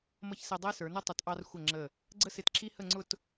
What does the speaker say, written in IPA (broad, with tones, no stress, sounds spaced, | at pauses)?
m ʌ˧ ç s ɛ˧ dˤ æ˥ s ə˞˩˧ n ʌ˥ tˤ ʊ˩˧ t ʔ ɑ˧ r xʷ ə˧˩ ŋ͡ǁ ə˧˩ | ɡ͡ǀ ə˥ s ɪ˧ t ǁ i˥ h ə˥˧ ŋ͡ǀ ʊ˥˧ t